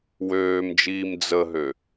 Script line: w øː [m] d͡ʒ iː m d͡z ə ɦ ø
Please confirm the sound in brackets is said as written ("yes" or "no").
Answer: yes